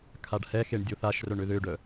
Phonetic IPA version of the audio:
kʰ a ɖ h ɛ x e ɳ dʲ o θ a ʃ r œ ɳ ø ð ø ɖ œ

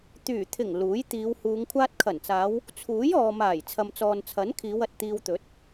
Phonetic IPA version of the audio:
t̪ yː˨˩ t̪ʰ ɪ˨˩ ŋ l uː˨˥ j t̪ iː˨˧ w h uː˨˧ ŋ kʷʰ aː˧ t̚ kʰ ɐ˨˩ n t͡s aː˨˧ w | t͡sʰ uː˨˥ j ɔː˨ m aː˨˩ j t͡sʰ ɐ˨ m t͡s ɔː˨ n t͡sʰ ɐ˨˥ n kʰ iː˨˧ w ɐ˨ t̚ t̪ iː˧ w t̪ ɵ˨˥ t̚

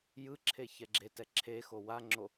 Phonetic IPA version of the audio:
j ɯ ǁʰ e ç ɛ ɡ͡ǁ e t ɛ ǁʰ e x o w a ŋ͡ǁ o

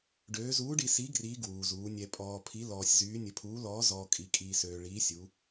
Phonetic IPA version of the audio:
ɖ øː˧˥ z uː˧˥ ɖ i˧ s i˧˥ ɡ r iː˧˥ ɡ w uː˧ z uː˧˥ nʲ ɛ˧ pʼ ɔː˧ pʰ i˧˥ l ɔː˧ sʲ z yː˧˥ nʲ ə˧ pʰ uː˧˥ l ɔː˧˥ z ɔː˧ kʼ i˧ kʼ iː˧ s øː˧ ɭ iː˧˥ sʲ u˧˥

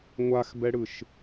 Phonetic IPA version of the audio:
ŋʷ a x b ɛ ɽ ɯ ʃ

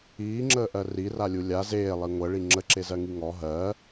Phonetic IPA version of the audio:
iː ŋ͡ǁ əː ʔ ɜ r i r a lʲ u lʲ a z eː lˠ i ŋʷ ɜ ɭ i ŋ͡ǁ ə ǁ e z ɜ ŋ i ŋ ɔ ɦ ɜ

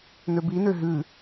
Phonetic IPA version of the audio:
n ø b i n ø ɦ ʉ

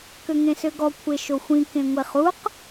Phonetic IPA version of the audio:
k ø ŋ ẽ s ø ɡ ɔ kʷʰ e ʃ o xʷ ĩ k ẽ ŋʷ e χ u q

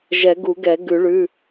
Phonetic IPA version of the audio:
ʒ ɛ˨˩˦ ɡ u˨˩˦ ɡ ɛ˨˩˦ ɡ ʉ˨˩˦ ɭ ʉ˩˧˩

